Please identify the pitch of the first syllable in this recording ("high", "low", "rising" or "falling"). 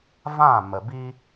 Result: falling